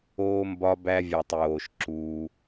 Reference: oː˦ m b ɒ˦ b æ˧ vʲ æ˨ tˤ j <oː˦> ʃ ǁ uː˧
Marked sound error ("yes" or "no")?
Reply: yes